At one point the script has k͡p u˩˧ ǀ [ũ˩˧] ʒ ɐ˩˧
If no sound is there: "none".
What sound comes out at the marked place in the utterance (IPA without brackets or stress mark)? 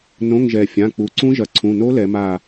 ũ˦˥